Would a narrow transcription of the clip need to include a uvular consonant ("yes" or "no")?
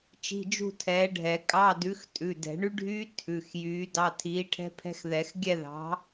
no